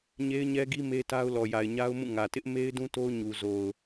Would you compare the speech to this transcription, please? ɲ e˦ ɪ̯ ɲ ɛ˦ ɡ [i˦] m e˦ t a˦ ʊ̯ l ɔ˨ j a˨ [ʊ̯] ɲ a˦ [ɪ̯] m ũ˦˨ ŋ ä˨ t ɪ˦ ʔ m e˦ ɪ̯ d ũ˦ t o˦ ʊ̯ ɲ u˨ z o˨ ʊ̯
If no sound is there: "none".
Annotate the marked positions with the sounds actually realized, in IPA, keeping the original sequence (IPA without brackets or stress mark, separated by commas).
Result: i˦, ɪ̯, ʊ̯